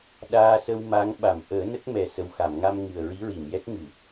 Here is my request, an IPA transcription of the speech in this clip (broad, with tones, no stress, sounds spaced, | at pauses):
ɗ aː˧ s ə˧ w m a˧˥ ŋ ɓ a˨˩˨ m ʔ əː˨˩˦ n ə˦˥ k̚ m ɛ˨˩ s ə˨˩ w x a˨˩˨ m ŋ a˧ m ŋ ɨ˨˩ ə̯ ɹ i˧˥ ɹ i˨˩˨ m j ɛ˦˥ k̚ ŋ ɨ˨˩˨